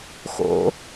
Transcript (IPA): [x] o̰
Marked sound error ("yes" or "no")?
no